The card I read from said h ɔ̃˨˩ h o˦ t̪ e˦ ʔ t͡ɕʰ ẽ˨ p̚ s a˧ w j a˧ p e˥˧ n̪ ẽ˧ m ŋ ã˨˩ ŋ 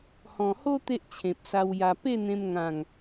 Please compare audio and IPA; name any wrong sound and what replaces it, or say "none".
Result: none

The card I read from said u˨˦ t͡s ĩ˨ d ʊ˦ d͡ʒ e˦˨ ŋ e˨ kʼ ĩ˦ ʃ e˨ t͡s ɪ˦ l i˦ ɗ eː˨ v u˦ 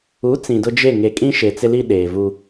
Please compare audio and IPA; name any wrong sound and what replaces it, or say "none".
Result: none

